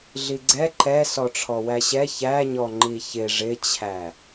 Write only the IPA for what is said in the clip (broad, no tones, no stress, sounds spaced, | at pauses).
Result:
ɮ i ɡ͡ǀ ɛ ǃ ɛ s ɔ ʈ͡ʂʰ ɔ w æ ɕ ɛ ç æ ɲ ɔ ŋ͡ǃ i ç ɪ ʐ ɪ t͡ɕʰ æ